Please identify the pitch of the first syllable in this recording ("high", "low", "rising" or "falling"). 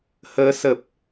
rising